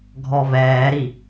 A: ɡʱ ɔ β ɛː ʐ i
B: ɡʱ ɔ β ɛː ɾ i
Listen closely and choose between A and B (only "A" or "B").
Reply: B